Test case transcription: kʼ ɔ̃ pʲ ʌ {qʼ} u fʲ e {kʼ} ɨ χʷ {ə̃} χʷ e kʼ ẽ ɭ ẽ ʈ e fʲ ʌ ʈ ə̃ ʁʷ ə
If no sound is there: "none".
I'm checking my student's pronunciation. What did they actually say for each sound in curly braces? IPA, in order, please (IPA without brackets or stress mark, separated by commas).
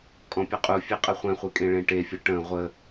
qʼ, qʼ, ɛ̃